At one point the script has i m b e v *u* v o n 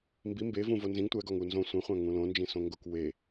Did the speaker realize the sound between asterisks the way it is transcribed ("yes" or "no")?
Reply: no